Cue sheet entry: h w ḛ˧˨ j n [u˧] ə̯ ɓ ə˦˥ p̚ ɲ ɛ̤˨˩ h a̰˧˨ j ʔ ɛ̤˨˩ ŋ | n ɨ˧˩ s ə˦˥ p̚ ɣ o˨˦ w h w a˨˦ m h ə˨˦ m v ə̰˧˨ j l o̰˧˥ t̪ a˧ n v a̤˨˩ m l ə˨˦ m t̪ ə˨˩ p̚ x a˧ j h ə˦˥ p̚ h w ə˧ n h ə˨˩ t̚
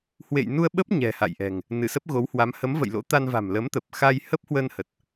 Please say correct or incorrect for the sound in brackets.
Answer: correct